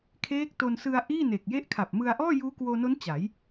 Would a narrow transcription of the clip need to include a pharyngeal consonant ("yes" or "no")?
no